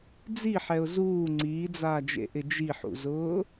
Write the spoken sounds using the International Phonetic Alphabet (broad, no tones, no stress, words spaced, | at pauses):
d͡ziħɛʊ̯ zuː ŋ͡ǀiːd͡zaːd͡ʒḛʔɪ d͡ʒiħṵzʊː